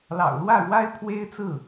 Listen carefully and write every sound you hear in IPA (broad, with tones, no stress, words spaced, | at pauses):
lɑ̰˨˩ʊ̯ lwä˥˩ɻwa˥ɪ̯ pʰwe˥ɪ̯t͡sɹ̩˥˩